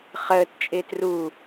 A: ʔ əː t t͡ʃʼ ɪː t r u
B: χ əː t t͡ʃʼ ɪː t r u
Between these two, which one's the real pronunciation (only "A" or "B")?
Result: B